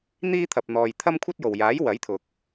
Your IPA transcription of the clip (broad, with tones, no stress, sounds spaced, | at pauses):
n̪ iː˧ t̪ʰ ɐ˨ p̚ n̪ ɔː˨ j t̪ʰ ɐ˥ m kʷʰ ɐ˥ t̚ j o˨ w j aː˨˥ j w ɐ˨˥ j t̪ʰ ʊ˨ k̚